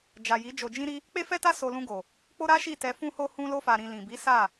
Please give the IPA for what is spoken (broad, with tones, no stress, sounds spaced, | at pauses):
d͡ʒ a˨ j i˨˦ d͡ʒ o˧ d͡ʒ ĩ˦ ɾ i˦ | k͡p e˦ f ɛ˦ t a˦ s o˧ l ũ˧ ɡ o˨ | k͡p o˦ ɾ a˦ ʃ i˦˨ t ɛ˧ f ũ˧ h o˧ h ũ˦ l o˦ f a˧ ɾ ĩ˧ l ĩ˨ b i˨˦ s a˦˨